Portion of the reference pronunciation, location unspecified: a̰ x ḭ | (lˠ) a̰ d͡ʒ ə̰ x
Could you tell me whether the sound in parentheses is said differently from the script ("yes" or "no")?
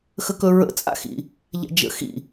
yes